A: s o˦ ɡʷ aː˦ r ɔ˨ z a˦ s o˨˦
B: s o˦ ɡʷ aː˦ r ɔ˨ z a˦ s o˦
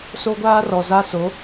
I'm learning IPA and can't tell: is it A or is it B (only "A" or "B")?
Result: A